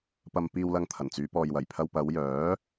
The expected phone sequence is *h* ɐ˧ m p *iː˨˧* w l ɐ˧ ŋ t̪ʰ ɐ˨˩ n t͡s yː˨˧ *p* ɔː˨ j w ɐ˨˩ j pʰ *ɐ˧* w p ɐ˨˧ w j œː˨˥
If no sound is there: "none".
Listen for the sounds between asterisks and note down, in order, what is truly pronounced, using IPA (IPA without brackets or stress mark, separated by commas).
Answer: p, iː˧, p, ɐ˧